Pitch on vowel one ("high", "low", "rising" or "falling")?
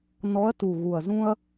rising